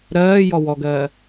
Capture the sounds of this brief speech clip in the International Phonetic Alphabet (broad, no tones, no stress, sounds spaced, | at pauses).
ɾ ɜː j ɔ w ɔ ɡ ɜː